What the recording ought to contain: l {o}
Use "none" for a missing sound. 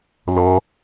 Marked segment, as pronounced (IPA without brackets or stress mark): ɔ